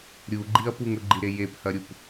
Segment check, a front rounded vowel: absent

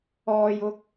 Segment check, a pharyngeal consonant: absent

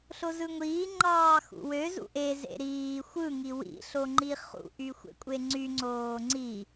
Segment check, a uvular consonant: present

